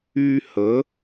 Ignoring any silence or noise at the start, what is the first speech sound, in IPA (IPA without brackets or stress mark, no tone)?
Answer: y